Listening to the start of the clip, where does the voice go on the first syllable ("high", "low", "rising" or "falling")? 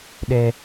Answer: high